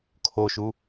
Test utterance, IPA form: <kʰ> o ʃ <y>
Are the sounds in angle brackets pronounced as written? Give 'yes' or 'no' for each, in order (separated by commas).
yes, no